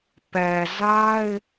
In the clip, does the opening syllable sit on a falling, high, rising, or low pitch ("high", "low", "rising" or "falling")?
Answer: low